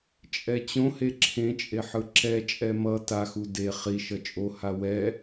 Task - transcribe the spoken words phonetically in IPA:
t͡ʃʼ ɛ t͡ɕ õ h e ǁʰ ẽ t͡ʃʼ e ħ ɯ ǁ ɛ t͡ʃʼ ɛ m ʌ t a x u d e χ i ʃ ʌ t͡ʃʼ o h a w ɛ

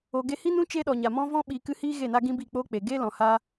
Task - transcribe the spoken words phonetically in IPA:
o˨ ɡ e˧ h i˦ n ũ˦ t͡ʃ e˦ ɗ ɔ˨ ɲ a˨ m ɔ̃˦ v ɔ̃˦ ɓ iː˨ k ɨ˧ h iː˦ ɣ e˦˨ n a˦ ɡ ĩ˦ b i˦˨ k͡p oː˦ k͡p e˨ ɡ e˦ l ɔ̃˨ h a˧

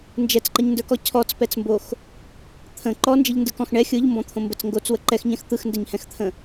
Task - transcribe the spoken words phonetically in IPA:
n d͡ʒ ɛ t͡s ǃ ə ɲ n d ə˞ k ɔ cʰ ɔ t͡s p ɛ t͡s m b o x | t̪ʰ ə̃ ǃ ɔ n d͡ʒ ə ʎ n d ɯ k ɔ̃ x ɳ ɛ xʲ ɯ ʎ m b ɔ̃ t̪ʰ õ m b ə t͡s ŋ ɡ o t͡s w ə ǃ ɛ x ɲ ɛ̃ x t̪ ɯ x n d ɛ ɲ h ɛ̃ x t̪ʰ ə̃

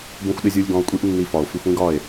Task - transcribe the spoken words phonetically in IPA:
b ũ˧ xʷ ɗ ɪ˧ zʲ u˧ lʲ ɡ ɔ̃˧ o̯ kʷʼ i˦ ʔ nː i˧ f ɒ˨ o̯ f i˧ xʷ ĩ˦ ɡ ɒ˦˨ e̯

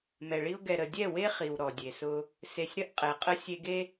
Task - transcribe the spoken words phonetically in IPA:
m ɛ˨ ɭ i˦ ʊ̯ ɡ ɛ˨ ɾ ə˨ dʲ ɛ˦˨ w e˦ χ i˨ w ɾ ɔ˨ dʲ e˨ s ʊ˦ | s e˨ sʲ ɾ ə˦ ʔ qʼ ɛ˨ qʼ ə˦ sʲ e˦ ɡ e˦

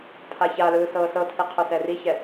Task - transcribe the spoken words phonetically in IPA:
pʰ a ç a l ɯː s ɤː s ɤ tʰ i qʰ o s ɛ r i ç ɛ

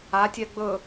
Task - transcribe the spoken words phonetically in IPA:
a tʲ ɛ ɡ͡b ɵ

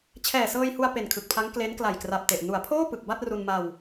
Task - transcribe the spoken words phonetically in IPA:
t͡ɕʰ ɛː˨˩ s ɤː˧ j h u˧ a̯ p e˨˩ n kʰ ɯ˨˩ k̚ pʰ a˦˥ ŋ k l e˦˥ n k l a˨˩ j k r a˨˩ p̚ t e˨˩ ʔ n u˩˦ a̯ pʰ oː˥˩ p ɯ˨˩ k̚ b a˥˩ t̚ r u˧ n m a˧ w

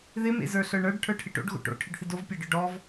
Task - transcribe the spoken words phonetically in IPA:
ð ɪ m ḛ z ə˞ ɬ ə˞ ɳ ə˞ ɖ ʈʰ ə˞ ʈʰ ɪ ʈ o̰ ɖ ɣ o̰ ʈ o̰ ʈʰ ɪ ɖ θ ɪ d o v pʲ ɑ ɖ ə˞ ɖ ɔ v

